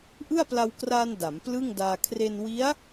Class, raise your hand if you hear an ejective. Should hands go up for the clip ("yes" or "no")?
no